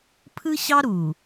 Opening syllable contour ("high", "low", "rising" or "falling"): high